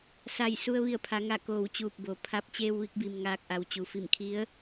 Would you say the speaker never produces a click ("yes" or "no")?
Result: yes